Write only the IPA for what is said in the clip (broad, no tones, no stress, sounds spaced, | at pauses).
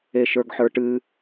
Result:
e ʃ ə˞ ɡ ħ ə˞ ʈ ɨ